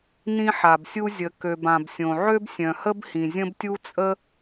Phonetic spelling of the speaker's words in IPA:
n ĩ˥ ħ a˩ b sʲ u˥ zʲ ə˩ k ø˩ b ã˩ b sʲ õ˩ ʕ ø˥ b sʲ œ̃˩ h ə˥ b h ĩ˩ zʲ ə̃˥ b tʲ u˥ t͡sʼ ə˥

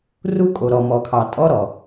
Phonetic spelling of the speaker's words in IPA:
r u˦ kʼ o˨ ɾ ɔ˨ m ɔ˨ kʰ ɑ˨ tʼ ɔ˦ ɾ ɔ˨

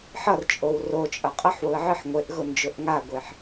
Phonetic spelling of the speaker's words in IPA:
ħ ʌ r t͡ʃʼ o w r o t͡ʃʼ ʌ qʼ ʌ ħ w ʊ ə̯ ʕ ɨ ħ ŋʷ e ʔ ɣ ʊ n d͡ʒ ʊ ʔ ŋ a ɡʷ e ħ

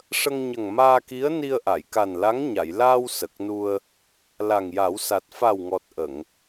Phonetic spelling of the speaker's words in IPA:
ʂ ə˧ ŋ ɲ ə˨˩ ŋ m aː˧ k i˧˥ ə̯ n i˧ ə̯ ʔ a˨˩˨ j k a˨˩ n l a˧˥ ŋ ɲ a˨˩˨ j l aː˧ w s ə˨˩ k̚ n u˧ ə̯ | l a˨˩ ŋ j a˨˩˦ w s a˨˩ t̚ f a˨˩ w ŋ ɔ˨˩ t̚ ʔ ə˨˩˨ ŋ

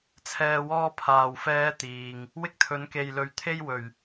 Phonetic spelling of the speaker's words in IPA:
t͡sʰ ɛː˨ w ɔː˧ pʰ aː˨˩ w f ɛː˨˧ t̪ iː˨ ŋ | w ɪ˥ k̚ t̪ʰ ɵ˨˥ n k e˨ j l ɵ˨˥ ɥ t̪ʰ e˥ j w ɵ˨˩ ɥ

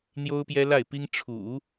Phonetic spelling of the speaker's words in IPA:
n̪ j o˥ ʊ̯ p j ɛ˥ l a˥˩ ɪ̯ p i˥ ŋ ʈ͡ʂʰ ṵ˨˩˦

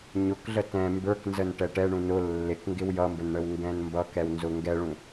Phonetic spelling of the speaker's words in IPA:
ɲ ʊ k ɮ ə t ɛ̃ m b ə˞ k n z ə n ʈ ɛ ʈ ɛ ɳ ũ n ʊ lː ɪ k ŋ ɡ ɪ w j ʌ m b ə n ɳ ə w ŋ ɡ ɛ̃ n m b ʌ k ɛ w n z ʊ ŋ ɡ ɛ ɭ ũ

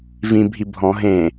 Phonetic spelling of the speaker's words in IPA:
v ĩ bʱ i bʱ ɔ̃ ɦ ẽ

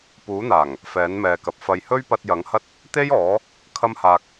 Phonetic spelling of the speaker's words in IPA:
p uː˨˥ n̪ aː˨˩ ŋ | f ɛː˨˥ n m ɛː˨ k ɐ˨ p̚ f ɐ˨ j h ɵ˥ ɥ p ɐ˧ t̚ j ɐ˨˥ ŋ h ɐ˥ t̚ | t̪ e˥ j ɔː˨˥ | kʰ ɐ˥ m h aː˧ k̚

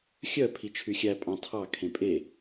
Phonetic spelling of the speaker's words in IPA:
xʲ œ pʰ i t͡ʃʰ y xʲ æ pʼ ɑ̃ tʰ ɑ kʰ ẽ pʼ e

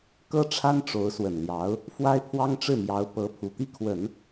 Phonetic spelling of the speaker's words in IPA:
k ɤ˥ ʈ͡ʂʰ a˥ n ʈ͡ʂ o˧˥ ʊ̯ s w ə˨˩ n l j ɑ˧˥ ʊ̯ | f w a˥ ɪ̯ pʰ w ɑ˥ ŋ ʈ͡ʂ ɻ̩˥˩ m j ɑ˧˥ ʊ̯ p ɤ˧˥ pʰ u˨˩ t̪ i˥˩ kʰ w ə˨˩˦ n

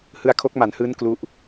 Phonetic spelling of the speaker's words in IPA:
h ɯ˧ a̯ kʰ o˦˥ k̚ m a˩˦ n h ɯː˦˥ n k l u˦˥ ʔ

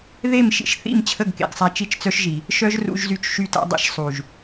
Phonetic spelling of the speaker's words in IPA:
ð e˦˨ m ʃ ḭ˧ ʃ θ ḭ˦˨ m t͡ɕʰ ə˦˨ ɡ k ḛ˨ ɡ sˤ a˧ t͡ʃ i˦ t͡ʃ t͡s œ˦ ʃ ʒ i˨ | ʃ œ˦ ʒ r ṵ˧ ʒ z y˧ t͡ʃ ʃ y˧ t a̰˧ dˤ ḭ˧ ʃ sˤ u˨ ʒ

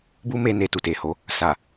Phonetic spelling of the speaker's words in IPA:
b u˦ m e˧ n e˨ t u˨ t e˨ h o˨˦ | s a˨

